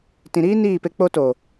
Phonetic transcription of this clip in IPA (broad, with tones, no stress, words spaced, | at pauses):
tĩ˨ɾiː˦ niː˦˨pe˧ k͡po˧to˨